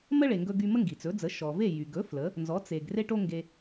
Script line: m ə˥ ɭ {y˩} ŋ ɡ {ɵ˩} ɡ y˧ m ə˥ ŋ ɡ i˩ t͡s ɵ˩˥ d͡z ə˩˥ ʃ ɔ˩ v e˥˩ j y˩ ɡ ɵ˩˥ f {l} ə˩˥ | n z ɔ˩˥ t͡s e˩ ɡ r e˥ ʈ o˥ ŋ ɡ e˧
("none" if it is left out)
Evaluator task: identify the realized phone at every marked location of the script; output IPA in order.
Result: e˩, ɵ˧, l

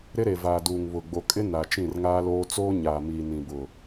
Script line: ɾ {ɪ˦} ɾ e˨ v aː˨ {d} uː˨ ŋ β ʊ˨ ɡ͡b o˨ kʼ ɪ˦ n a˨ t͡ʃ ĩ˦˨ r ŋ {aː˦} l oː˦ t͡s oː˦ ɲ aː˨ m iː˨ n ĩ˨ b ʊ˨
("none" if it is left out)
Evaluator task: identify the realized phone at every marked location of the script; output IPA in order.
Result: ɪ˦, d, aː˦

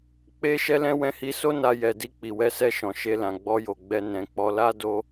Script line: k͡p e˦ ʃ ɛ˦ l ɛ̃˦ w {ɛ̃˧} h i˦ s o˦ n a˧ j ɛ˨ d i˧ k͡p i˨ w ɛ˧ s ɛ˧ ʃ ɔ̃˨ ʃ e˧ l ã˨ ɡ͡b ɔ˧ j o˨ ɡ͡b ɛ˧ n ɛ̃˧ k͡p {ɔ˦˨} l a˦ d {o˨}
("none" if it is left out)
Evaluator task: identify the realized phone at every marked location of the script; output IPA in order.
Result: ɛ̃˦, ɔ˧, o˦

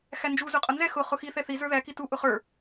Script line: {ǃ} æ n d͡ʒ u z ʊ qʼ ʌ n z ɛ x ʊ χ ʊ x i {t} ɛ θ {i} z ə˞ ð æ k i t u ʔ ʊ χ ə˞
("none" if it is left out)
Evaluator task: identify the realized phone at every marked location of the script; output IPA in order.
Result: x, θ, i

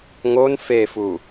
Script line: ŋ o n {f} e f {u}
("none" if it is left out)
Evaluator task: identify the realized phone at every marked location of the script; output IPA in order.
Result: f, u

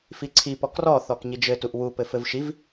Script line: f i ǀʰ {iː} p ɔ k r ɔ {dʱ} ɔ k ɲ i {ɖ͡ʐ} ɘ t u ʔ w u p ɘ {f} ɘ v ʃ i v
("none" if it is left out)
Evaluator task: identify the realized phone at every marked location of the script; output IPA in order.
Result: i, θ, d͡ʒ, f

